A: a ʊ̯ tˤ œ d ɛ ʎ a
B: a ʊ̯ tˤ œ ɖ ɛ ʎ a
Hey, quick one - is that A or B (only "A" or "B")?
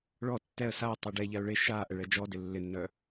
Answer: B